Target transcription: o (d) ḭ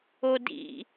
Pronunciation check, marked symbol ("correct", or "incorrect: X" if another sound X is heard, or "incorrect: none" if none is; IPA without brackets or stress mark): correct